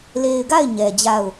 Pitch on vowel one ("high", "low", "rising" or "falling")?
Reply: low